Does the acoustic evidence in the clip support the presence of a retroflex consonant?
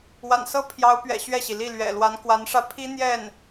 yes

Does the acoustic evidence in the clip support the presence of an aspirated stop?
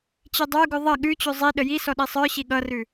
no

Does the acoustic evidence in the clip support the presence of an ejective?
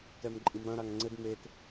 yes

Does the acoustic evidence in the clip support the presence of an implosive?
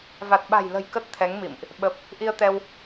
yes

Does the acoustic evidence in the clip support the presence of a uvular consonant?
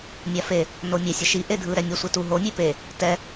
no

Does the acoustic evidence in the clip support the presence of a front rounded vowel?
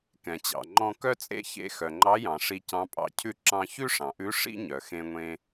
yes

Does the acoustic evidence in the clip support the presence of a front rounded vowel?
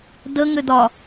yes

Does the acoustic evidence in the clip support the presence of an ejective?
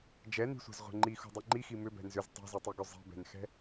no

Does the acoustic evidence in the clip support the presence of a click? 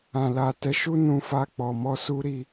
no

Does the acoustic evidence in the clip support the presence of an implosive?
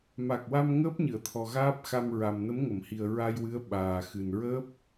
yes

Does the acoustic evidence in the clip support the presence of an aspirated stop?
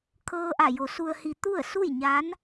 yes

